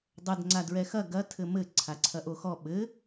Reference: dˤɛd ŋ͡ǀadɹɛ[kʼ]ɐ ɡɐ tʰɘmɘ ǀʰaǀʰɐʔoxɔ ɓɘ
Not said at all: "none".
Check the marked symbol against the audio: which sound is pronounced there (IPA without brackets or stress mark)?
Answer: x